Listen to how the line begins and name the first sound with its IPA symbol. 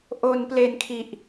ʔ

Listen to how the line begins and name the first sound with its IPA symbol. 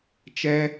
t͡ʃ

